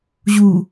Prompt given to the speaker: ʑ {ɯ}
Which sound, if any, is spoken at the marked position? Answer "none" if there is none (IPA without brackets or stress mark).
u